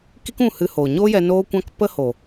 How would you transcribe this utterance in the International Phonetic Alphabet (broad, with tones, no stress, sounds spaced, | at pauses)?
k i˦ k ũ˦˨ h ɨ˧ h oː˨ ɲ o˦ j ɛ˧ n oː˦ kʷ ã˦ k p ə˦ h o˨